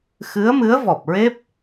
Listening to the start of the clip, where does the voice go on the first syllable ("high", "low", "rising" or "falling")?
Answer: rising